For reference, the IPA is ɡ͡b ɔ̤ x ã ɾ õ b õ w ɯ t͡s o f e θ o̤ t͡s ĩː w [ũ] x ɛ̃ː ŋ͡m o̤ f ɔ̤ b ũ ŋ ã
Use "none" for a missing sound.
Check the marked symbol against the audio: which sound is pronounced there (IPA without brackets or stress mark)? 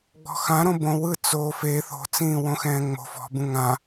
õ